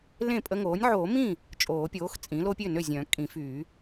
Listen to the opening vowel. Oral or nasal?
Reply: nasal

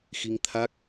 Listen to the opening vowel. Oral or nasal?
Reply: oral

